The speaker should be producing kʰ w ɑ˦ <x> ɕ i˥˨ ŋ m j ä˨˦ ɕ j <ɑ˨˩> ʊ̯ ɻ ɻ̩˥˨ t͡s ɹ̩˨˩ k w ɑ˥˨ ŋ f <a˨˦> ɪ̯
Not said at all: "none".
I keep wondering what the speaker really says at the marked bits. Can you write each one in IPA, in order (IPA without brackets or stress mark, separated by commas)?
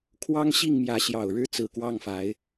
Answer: ŋ, ɑ˨˩, a˨˦